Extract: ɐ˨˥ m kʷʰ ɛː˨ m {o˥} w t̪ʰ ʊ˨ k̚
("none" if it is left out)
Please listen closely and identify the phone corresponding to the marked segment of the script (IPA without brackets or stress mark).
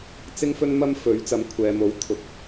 o˨˥